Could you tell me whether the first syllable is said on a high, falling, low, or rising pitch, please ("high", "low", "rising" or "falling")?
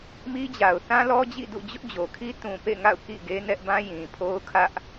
high